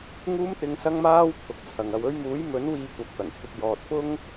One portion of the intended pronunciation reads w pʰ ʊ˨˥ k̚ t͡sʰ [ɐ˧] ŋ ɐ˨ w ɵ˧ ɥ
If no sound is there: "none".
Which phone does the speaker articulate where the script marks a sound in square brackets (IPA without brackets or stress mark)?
ɐ˨